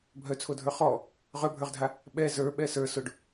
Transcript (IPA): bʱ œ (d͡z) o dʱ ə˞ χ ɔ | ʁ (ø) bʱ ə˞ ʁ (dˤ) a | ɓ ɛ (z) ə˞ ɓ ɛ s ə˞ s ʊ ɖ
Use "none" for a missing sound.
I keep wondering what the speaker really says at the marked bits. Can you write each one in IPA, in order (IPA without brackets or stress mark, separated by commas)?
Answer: t͡sʰ, œ, dʱ, z